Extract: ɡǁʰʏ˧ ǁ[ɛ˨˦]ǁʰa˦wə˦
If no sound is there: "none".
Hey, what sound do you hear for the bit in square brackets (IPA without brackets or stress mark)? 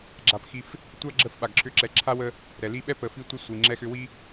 ɛ˨